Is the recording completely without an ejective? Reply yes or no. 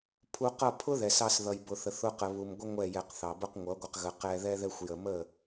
yes